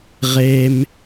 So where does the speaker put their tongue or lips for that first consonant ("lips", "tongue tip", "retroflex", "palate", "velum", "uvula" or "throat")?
uvula